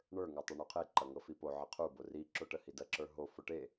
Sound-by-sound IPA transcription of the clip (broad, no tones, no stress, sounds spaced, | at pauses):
ɳ ə˞ ŋ o tˤ e ɳ u qʰ e ǃ ɐ ŋ ɤ f i p o ʕ ə qʰ u b o r i ǁ o ʈ ə h i d ɐ ǁ ə˞ ɦ o f o ʈ e